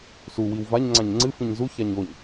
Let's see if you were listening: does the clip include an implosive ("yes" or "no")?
no